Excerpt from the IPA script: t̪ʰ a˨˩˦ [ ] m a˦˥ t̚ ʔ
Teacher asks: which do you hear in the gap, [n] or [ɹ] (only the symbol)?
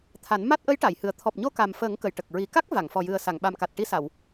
n